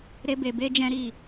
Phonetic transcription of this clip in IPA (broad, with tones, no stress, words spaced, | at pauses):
ɾe˧ be˨be˧ d͡ʒɛ̃˦ɾi˦˨